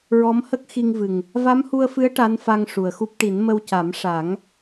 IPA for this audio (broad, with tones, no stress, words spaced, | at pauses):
ɹɔ˧˥mhə˦˥k̚xi˧ŋvɨ˨˩ŋ | va˧˥mhu˧ə̯fɨ˧˥ə̯ ʈa˧˥nfa˧ŋ ʂu˨˩ə̯xu˦˥p̚ ʈi˨˩˦nmə˧wca˨˩˦m ʂa˨˩˦ŋ